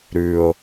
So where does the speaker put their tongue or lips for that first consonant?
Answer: tongue tip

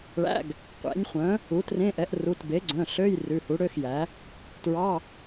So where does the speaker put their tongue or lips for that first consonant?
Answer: retroflex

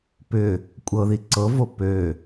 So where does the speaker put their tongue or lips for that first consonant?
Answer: lips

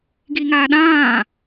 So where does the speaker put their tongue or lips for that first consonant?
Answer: velum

